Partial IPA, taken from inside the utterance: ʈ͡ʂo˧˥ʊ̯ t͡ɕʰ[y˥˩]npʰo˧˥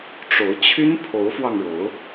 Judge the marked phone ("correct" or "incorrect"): incorrect